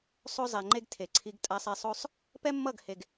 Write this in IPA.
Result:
sˤ o˦ zˤ ɛ˨ ŋ͡ǃ e˦ ɡ tʰ e˨ ǀʰ i˧ ɡ tʼ a˧ sˤ e˧ sˤ o˦ sˤ | p ɛ˦ mː ʌ˦˨ ɡ h e˨ ɡ

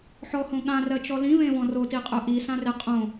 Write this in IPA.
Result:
ħ ɔ h õ ɠ ã r ɜ t͡ʃ ɔ l ĩ v ẽ v ɔ̃ r o t i qʼ œ ʔ i s ã r e qʼ õ

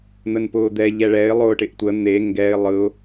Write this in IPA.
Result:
n̪ ə n p ʊː d̪ ɛ ʎ ɛ ɭ ɛ ɪ̯ lˠ ʊː ʈ ɪ ʔ tʷ ə n̪ e ŋ ɡ ɛ ɪ̯ lˠ ɯ ʊ̯

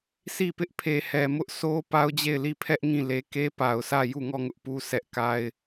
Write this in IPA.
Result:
sʰ i˦˨ p ɪ˦ ʔ pʰ e˨ h ɛ˨ m ʊ˦ ʔ sʰ o˦ p a˦ ʊ̯ d͡ʑ e˦˨ ɪ̯ l i˦˨ pʰ ɛ˦ ʔ ŋ ĩ˦˨ l e˦ k e˦ p a˨ ʊ̯ sʰ ä˦˨ j u˦˨ ŋ ɔ˦˨ ŋ ʊ˦ ʔ p u˦ sʰ ɛ˦ ʔ k a˦ ɪ̯

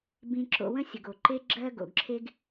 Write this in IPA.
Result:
b ĩ˧ ǁ o̰˧ w ə̃˦ sʲ ə˨ ɡ o˨ ǃ e˦ ɡ͡ǁ ɜ˦ ɡ o̰˨ ɡ ǁʰ e˦ ɡ

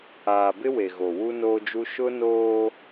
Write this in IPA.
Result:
aː˨ b ɪ˦ w e˨ ɣ o˨ w u˦ n oː˦ d͡ʒ u˦ ʃ ʊ˦ n oː˦

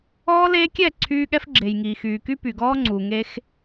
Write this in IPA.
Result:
ɔː˦ l eː˦ kʲ ɛ˦˨ ǀʰ yː˦ ɠ ɛ˦ f ɡ͡ǁ e˨ j ŋ iː˨ x yː˨ k y˦ p y˨ ɡ ɔː˦ ŋ͡ǀ uː˨ ŋ e˦ x

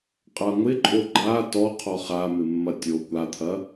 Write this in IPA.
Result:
qʼ a ŋʷ ɪ ǃʼ o ɡ͡ǃ a t ɔ qʰ ɔ χ a m ɪ mː ɐ tʲ o kʷ a t̪ʰ ɐ

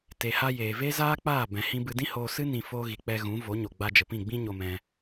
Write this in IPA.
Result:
t e˨ h a˧ j eː˨ v e˦ z aː˦ k͡p aː˦˨ b ɛ̃˨ h ĩ˧ b ɨ˧ d ĩ˦ h oː˧ s ɨ˦ n ĩ˧ f oː˧ ɣ i˨ k͡p ɛ˧ ɣ ũ˨˦ v o˨˦ ɲ o˨ ɡ͡b a˧ d͡ʒ ə˨ p ĩ˦˨ ɡ͡b ĩ˦ ɲ o˧ m ɛ̃˧

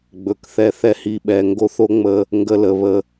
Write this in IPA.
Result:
ɡ͡b ɵ˨ k θ ɛ˧ θ ɛ˦ h i˧ ɓ ɛ˨ ŋ ɡ o˦ θ o˦ ŋ͡m ə˧ | ŋ ɡ ə˧ l ə˨ β ə˧

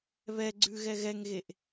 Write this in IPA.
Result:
β ɛ ɡ͡ǀ ʉ ɣ ɛ ɣ ɛ ŋ ɣ e ʔ

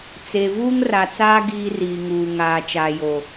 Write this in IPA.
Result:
t͡s e˨ v uː˦ ŋ r a˨ t͡s aː˦ ɡ iː˦ r iː˨ ŋ uː˨ ŋ aː˨ t͡ʃ aː˨ j o˨

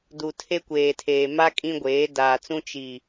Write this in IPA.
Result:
d u˨ tʰ e˦ kʷ eː˨ tʰ eː˨ m a˦ kʼ ĩ˦ ɡʷ eː˨˦ d aː˨ t͡s ũ˦ t͡ʃ i˨

